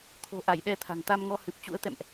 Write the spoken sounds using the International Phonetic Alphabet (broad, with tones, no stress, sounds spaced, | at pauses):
t̪ʰ o̤˨˩ ʔ a˧˩ j ɗ ɛ˧ t̪ʰ a̤˨˩ ŋ t̪ a˧ m ŋ ɔ˧ h ɨ˨˩ p̚ t͡ɕ ṵ˧˥ ə̯ t̪ ɛ̰˧˨ m ʔ